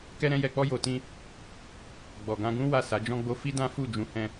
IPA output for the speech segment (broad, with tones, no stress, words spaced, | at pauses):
kɛ˦ɾɛ̃˦jɛ˧k͡pɔ˦ jo˧tĩ˦ | ɡ͡bɔ˨ɡã˧ɡũ˦ wa˦˨sa˨˦d͡ʒɔ̃˦ɡ͡bo˦ fi˦dã˦ fu˦˨d͡ʒũ˨˦ hɛ̃˧